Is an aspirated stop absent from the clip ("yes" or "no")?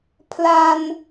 no